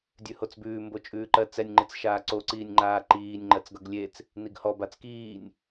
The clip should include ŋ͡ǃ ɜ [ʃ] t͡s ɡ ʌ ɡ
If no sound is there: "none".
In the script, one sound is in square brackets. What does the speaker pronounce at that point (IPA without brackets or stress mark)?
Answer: none